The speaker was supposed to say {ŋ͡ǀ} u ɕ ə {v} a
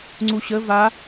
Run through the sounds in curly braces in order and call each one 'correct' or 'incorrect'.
correct, correct

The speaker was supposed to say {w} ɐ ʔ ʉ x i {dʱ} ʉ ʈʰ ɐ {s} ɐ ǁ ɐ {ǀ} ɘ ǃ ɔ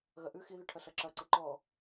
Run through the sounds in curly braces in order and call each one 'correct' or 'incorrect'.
incorrect: ɣ, incorrect: ð, incorrect: ɬ, correct

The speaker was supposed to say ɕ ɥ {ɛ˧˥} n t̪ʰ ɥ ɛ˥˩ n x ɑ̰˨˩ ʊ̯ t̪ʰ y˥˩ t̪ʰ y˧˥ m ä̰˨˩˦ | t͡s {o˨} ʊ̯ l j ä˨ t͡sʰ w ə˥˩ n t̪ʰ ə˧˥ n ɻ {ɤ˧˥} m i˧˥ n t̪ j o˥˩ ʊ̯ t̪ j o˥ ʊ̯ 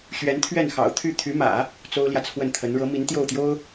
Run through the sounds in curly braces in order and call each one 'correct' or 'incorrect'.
correct, incorrect: o˥, correct

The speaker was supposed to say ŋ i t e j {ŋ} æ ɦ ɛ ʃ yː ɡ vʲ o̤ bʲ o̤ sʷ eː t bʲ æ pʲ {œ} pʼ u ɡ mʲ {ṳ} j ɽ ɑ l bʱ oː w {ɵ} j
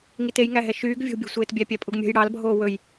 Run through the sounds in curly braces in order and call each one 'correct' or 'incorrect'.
correct, incorrect: æ, incorrect: o̤, correct

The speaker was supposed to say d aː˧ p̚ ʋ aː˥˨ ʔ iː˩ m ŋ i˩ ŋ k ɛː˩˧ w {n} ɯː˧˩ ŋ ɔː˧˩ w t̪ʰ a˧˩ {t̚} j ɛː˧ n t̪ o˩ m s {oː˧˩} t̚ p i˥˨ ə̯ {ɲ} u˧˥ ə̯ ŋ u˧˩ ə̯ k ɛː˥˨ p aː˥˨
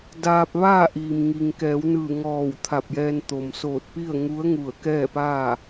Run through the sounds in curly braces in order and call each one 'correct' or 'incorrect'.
correct, incorrect: p̚, correct, incorrect: ŋ

